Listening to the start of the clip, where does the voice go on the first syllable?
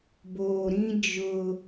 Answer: low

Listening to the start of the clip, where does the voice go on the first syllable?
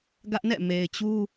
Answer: high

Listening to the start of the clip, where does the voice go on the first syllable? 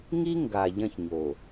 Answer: high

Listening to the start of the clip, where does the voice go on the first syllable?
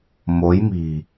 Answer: rising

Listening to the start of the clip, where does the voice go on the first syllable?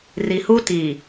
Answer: low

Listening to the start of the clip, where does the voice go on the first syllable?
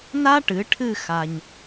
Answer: high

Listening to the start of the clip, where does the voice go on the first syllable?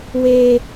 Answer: high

